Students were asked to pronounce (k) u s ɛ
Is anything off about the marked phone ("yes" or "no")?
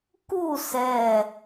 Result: no